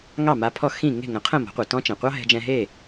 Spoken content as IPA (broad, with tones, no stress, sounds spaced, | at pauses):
ŋ ɑ˥˩ m a˧ pʰ ɔ˥˩ x ĩ˥˩ ŋ e̤˥˩ ŋ ə̃˩˥ qʰ ə̃˥˩ m ɔ̤˩˥ qʷ ɛ˩ t ɔ̃˥ t͡ʃ ɛ̃˩ qʷ ɑ˥ ɦ ɛ̤˧ d͡ʒ ɛ̃˧ ɦ e˥˩